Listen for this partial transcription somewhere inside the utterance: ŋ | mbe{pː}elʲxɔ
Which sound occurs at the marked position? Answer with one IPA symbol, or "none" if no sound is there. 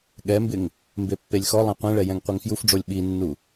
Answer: pː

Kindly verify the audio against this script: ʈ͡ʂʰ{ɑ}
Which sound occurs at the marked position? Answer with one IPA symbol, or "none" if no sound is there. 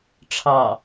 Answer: ɑ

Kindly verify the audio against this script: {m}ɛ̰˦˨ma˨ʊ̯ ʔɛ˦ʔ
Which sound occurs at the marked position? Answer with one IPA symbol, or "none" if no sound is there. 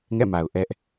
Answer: ŋ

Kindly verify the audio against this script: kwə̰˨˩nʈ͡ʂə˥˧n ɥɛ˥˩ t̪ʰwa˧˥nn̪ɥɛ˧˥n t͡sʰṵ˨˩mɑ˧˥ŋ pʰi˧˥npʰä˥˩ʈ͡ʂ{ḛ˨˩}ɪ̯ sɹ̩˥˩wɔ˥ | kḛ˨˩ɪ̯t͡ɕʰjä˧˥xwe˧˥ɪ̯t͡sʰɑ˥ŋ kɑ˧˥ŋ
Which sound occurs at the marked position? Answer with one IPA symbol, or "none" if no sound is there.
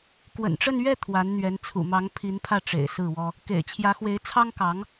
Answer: ḛ˨˩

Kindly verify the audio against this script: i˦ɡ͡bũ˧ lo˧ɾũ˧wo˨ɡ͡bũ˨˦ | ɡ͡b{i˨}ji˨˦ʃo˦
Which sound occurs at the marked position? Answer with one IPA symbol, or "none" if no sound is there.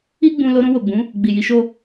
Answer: i˨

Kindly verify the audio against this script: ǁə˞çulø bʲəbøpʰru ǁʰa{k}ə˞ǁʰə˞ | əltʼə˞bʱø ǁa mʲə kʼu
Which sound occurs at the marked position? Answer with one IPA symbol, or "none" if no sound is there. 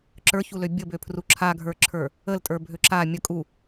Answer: ɡʱ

